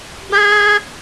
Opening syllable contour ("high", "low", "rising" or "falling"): high